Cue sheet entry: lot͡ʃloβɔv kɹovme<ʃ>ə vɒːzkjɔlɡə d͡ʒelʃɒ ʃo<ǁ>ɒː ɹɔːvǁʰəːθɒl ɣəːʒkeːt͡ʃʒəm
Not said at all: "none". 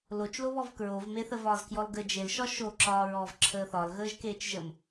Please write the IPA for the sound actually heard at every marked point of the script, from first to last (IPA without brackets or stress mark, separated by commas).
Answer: θ, ǁ